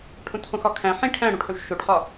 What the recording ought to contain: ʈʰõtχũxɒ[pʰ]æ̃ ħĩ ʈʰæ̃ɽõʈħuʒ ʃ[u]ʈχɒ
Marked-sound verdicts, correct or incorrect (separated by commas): incorrect, incorrect